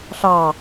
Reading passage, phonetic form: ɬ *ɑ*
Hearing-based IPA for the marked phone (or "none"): ɑ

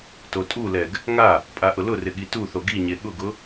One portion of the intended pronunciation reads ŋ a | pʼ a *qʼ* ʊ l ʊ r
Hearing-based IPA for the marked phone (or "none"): ʔ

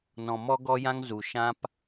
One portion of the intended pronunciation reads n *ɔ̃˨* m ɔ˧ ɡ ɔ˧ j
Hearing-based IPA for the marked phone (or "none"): ɔ̃˨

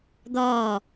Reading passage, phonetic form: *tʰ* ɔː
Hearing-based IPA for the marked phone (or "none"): d̪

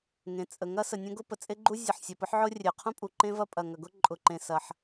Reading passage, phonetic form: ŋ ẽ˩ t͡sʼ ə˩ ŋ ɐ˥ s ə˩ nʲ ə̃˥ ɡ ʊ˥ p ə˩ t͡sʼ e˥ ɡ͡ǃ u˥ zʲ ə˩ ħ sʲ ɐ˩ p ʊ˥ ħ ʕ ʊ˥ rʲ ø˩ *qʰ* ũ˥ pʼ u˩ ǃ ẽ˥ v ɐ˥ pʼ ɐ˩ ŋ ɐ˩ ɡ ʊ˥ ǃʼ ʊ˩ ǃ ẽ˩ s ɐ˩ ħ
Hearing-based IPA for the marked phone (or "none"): qʰ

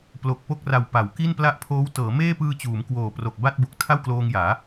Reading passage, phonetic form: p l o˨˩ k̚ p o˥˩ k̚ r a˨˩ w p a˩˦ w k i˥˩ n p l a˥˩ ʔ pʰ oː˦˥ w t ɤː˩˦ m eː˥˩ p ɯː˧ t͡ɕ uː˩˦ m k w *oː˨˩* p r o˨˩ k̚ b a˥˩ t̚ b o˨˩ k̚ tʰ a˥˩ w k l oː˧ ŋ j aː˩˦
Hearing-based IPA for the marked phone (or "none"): oː˨˩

